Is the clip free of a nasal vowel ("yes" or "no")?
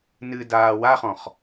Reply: no